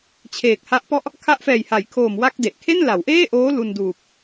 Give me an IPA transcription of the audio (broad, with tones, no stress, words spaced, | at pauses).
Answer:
t͡ɕʰeː˨˩k̚ha˦˥ʔpɔ˥˩ʔ | kʰa˦˥ʔfɛː˨˩jha˩˦jkʰoː˨˩m wa˥˩k̚de˨˩ʔ kʰe˥˩nla˩˦wʔeː˥˩ ʔoː˦˥ lu˧nduː˨˩p̚